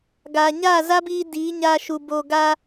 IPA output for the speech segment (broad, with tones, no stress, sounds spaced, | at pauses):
ɡ aː˨ ɲ aː˦˨ z a˦ b iː˧ d iː˨˦ ɲ aː˧ ʃ u˨ b oː˧ ɡ a˧